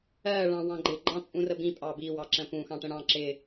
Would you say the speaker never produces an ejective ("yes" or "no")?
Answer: no